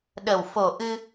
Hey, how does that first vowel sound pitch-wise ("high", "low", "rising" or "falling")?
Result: low